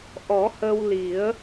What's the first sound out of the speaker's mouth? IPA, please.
ʔ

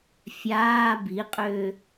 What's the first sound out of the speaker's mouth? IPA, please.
fʲ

